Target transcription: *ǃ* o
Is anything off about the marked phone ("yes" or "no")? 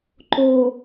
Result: no